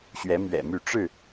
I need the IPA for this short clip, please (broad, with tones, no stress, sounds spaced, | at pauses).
ɕ ɥ ɛ˨˦ m ɥ ɛ̰˨˩ m y˥˨ ʈ͡ʂ ɻ̩˥˨